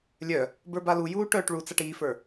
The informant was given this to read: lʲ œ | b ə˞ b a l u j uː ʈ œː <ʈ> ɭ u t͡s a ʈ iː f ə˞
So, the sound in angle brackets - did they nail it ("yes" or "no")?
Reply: yes